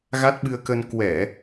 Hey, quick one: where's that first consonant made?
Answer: velum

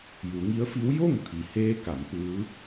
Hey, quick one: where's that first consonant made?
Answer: palate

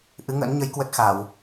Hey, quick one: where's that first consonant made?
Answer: throat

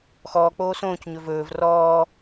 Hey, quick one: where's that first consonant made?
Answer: velum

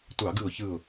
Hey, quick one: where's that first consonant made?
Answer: tongue tip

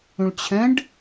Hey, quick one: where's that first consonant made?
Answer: retroflex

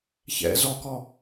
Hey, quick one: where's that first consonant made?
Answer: palate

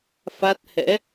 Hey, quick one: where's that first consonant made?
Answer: lips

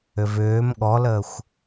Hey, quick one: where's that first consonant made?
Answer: lips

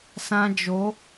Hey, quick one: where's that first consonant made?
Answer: tongue tip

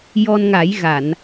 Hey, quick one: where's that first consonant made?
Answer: palate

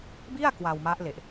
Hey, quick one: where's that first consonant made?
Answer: lips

